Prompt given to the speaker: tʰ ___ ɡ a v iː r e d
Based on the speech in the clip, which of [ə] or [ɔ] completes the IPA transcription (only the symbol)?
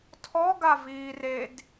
ɔ